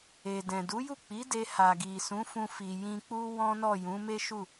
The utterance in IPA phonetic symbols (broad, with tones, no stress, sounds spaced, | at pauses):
e˨ d ɛ̃˨ d u˨˦ j u˦˨ k͡p i˨˦ d e˧ h a˨ ɡ i˨ s ũ˨˦ f ũ˧ f i˨ j ĩ˧ k͡p u˦ w ɔ̃˦ n ɔ˦˨ j ũ˨˦ m e˦ ʃ u˦˨